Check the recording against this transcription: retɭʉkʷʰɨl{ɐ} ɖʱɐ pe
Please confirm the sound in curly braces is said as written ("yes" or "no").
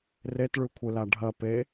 no